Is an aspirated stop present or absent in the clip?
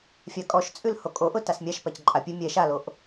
absent